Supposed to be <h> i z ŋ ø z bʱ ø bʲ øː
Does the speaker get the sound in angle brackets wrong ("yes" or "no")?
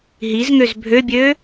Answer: yes